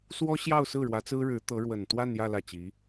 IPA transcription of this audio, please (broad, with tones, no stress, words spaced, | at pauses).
swɔ˥ ɕjɑ˥˧ʊ̯sɹ̩˥˩ ɻwä˧˥t͡sɹ̩˥ɻɻ̩˧˥ t̪ɤ˧˥ɻwə˨˩n t̪wa˥˧njä˥˧ lä˥˩t͡ɕi˧˥